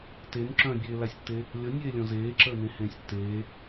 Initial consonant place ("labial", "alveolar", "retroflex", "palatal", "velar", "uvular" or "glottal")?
alveolar